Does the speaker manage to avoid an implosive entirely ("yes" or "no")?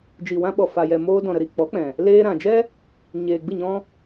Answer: no